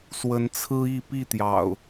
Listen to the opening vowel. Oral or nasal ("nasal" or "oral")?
oral